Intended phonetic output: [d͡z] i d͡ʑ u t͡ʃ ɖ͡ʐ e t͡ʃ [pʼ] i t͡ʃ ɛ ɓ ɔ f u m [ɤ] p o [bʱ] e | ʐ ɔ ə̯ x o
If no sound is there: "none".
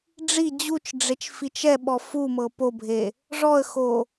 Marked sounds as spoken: ɖ͡ʐ, f, ɤ, bʱ

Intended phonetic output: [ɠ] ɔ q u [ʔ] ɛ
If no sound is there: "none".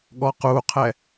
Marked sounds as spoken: ɠ, qʰ

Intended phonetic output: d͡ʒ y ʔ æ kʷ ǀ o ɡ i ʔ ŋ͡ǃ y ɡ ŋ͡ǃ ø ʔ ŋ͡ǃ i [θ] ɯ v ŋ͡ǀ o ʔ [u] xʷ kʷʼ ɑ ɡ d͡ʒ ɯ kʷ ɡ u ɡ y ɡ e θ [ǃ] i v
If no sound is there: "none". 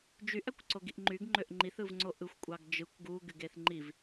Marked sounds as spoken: θ, ɯ, ŋ͡ǃ

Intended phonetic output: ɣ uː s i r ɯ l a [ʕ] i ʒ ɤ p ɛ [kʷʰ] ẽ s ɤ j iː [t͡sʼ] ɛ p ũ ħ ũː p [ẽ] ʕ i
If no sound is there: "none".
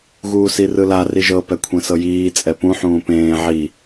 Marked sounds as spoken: r, kʷʰ, t͡sʼ, ẽː

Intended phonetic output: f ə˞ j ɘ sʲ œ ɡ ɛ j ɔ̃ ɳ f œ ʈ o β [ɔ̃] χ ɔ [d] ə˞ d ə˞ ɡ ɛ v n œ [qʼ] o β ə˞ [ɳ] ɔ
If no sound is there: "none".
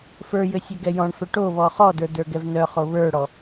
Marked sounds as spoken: ɔ, d, χ, ɽ

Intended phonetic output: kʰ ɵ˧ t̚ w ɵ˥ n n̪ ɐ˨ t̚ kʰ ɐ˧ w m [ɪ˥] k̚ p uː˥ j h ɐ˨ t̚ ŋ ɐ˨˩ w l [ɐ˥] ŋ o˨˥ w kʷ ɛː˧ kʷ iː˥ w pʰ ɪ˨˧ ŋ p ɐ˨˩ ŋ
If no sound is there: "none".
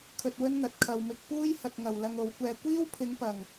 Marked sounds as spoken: ɪ˧, ɐ˧

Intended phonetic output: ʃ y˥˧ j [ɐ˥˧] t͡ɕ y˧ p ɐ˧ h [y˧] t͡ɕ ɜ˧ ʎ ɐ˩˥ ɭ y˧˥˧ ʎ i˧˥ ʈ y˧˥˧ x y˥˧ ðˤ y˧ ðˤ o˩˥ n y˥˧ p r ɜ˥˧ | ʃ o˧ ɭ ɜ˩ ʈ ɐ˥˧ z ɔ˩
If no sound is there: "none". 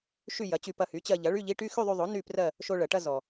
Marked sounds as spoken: ɐ˩˥, y˩˥

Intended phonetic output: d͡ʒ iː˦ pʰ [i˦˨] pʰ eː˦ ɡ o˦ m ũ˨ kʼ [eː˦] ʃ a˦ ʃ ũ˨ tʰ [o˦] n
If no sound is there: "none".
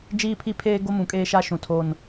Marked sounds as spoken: i˦, eː˦, o˦

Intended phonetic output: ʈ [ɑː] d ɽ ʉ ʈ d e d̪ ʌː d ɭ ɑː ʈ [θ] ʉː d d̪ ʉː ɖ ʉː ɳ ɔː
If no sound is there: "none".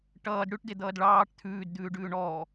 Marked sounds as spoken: ʌː, t̪ʰ

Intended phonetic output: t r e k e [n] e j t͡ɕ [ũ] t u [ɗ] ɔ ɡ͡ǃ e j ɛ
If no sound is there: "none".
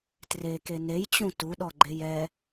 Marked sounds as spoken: n, ũ, ɗ

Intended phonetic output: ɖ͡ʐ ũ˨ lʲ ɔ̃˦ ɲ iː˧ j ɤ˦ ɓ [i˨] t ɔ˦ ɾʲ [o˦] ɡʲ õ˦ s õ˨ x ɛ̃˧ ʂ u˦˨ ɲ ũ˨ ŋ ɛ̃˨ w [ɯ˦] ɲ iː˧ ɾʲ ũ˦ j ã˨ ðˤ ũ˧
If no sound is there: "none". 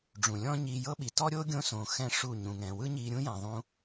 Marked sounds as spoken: i˨, o˦, ɯ˦

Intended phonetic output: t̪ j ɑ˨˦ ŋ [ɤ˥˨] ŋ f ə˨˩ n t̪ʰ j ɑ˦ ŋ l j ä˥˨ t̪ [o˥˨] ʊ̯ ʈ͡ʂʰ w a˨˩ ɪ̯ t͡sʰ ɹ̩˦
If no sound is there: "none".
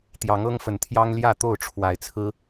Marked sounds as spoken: ɤ˦, o˥˨

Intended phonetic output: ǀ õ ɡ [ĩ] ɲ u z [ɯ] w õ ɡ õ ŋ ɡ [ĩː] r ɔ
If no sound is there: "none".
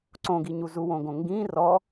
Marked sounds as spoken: i, u, ĩː

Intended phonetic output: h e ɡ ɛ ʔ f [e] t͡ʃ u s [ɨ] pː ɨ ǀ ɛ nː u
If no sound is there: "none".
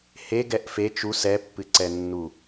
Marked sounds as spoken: e, ɛ

